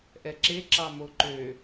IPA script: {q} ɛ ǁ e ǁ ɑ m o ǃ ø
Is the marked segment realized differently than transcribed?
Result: yes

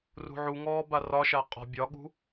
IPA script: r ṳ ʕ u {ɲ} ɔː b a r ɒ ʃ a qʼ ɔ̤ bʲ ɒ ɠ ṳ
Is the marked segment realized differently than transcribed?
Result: yes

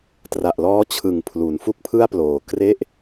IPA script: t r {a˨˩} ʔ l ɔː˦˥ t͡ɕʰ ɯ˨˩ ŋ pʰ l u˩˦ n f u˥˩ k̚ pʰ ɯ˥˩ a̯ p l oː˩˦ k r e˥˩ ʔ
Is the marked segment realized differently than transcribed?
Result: no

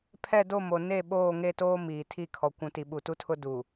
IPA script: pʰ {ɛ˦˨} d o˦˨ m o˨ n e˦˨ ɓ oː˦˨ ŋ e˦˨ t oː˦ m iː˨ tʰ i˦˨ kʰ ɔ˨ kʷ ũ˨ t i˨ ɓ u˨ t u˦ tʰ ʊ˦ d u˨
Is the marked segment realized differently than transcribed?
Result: no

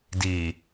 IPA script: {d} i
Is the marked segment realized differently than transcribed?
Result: no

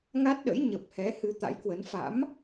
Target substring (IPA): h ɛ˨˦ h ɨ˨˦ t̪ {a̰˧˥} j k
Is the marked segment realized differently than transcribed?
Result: no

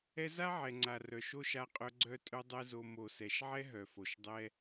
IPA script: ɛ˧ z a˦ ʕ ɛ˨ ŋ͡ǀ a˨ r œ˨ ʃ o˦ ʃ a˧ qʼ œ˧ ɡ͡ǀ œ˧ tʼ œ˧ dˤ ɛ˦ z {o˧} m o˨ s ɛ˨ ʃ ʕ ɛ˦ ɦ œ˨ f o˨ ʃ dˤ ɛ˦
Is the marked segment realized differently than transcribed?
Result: no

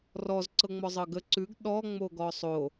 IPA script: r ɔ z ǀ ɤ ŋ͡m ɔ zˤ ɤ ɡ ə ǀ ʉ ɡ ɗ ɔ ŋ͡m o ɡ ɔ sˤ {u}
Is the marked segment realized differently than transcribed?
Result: yes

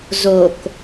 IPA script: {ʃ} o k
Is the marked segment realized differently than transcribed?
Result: yes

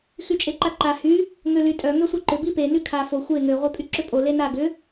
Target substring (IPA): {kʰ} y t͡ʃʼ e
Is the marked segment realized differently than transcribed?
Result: yes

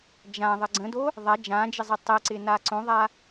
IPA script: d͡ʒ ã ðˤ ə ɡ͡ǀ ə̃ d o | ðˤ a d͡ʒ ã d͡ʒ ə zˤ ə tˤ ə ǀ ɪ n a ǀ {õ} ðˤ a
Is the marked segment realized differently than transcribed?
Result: no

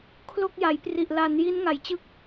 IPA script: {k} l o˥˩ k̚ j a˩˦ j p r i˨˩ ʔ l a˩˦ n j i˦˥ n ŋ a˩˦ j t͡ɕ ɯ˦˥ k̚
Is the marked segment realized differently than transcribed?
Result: yes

